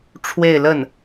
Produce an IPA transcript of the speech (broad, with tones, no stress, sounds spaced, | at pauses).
ʈ͡ʂʰ w e˥˧ ɪ̯ l ə˥˩ n